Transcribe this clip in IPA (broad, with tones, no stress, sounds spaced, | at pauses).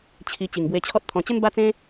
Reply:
t͡ɕʰ i˧ t͡ɕ i˨˩ ŋ b w e˧ t͡ɕʰ ɔ˦ t̚ t̪ʰ ɔ̃˧ t͡ɕ ə˦ n b a˦ t͡s ẽ˦